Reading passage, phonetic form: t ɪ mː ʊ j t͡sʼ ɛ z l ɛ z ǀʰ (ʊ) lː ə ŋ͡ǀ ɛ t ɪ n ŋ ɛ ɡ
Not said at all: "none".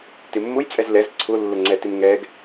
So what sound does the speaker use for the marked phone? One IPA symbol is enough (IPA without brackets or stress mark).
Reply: ʊ